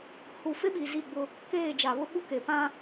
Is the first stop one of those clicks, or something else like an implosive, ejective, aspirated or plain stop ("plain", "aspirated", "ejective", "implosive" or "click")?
implosive